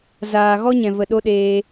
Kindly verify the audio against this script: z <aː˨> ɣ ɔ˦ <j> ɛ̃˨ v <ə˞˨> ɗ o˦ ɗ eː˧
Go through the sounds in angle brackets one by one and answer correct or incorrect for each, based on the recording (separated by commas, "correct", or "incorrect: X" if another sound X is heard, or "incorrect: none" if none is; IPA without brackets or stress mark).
correct, incorrect: ɲ, incorrect: ə˨